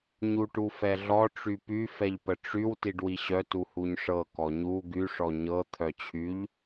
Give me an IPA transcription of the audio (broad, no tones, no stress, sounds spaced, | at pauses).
ɲ u ʈ u f ɛ ɮ ɔ ʈ͡ʂ y p y f ɛ ʎ p ə ʈ͡ʂ y w t i ɖ w i ɕ œ t u h u ɲ ʂ ɤ k ɔ ɲ u ɡ y ʂ ɔ ɲ ɤ t̪ʰ œ t͡ɕʰ y ʎ